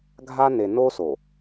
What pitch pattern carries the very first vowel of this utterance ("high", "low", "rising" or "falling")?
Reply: high